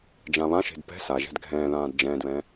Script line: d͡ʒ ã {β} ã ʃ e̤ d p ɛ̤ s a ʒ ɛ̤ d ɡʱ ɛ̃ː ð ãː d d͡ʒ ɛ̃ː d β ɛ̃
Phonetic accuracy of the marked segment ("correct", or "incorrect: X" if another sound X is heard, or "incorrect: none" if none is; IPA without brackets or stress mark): correct